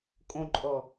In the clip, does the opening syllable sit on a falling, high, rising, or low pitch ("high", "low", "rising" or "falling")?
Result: low